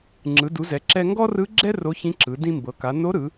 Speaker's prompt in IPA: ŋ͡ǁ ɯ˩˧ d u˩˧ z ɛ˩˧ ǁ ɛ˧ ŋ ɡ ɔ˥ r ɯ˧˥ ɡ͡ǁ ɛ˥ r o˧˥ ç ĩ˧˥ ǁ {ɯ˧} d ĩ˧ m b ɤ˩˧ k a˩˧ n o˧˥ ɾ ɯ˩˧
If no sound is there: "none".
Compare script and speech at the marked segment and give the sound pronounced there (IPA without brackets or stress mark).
ɯ˩˧